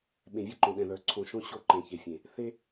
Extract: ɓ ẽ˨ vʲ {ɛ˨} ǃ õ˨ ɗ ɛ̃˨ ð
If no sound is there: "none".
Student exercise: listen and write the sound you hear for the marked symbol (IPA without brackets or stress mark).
ɛ˦